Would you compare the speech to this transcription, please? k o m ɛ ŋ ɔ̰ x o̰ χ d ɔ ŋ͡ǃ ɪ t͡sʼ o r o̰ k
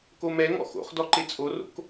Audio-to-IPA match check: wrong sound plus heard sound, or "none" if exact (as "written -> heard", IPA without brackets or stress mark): ŋ͡ǃ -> ǃ